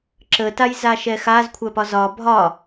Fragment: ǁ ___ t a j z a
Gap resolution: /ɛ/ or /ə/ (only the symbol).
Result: ə